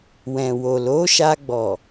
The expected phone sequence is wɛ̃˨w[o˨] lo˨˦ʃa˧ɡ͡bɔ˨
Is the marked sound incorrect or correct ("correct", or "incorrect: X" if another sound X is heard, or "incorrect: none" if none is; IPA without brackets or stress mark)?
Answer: correct